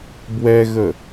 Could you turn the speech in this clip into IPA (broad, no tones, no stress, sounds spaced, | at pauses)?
b w ɛ ɣ ə